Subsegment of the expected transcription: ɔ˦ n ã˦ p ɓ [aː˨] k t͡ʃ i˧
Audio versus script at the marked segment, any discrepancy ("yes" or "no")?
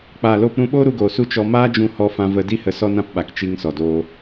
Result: yes